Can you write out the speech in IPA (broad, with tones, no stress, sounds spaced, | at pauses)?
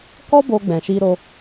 k ɔ˦ b o˧ ɡ͡b ɛ̃˨ ʃ i˧ ɾ o˧